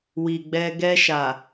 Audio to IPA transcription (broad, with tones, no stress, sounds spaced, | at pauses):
w i˨ ɡ͡b ɛ˧ ɡ ɛ˧ ʃ a˨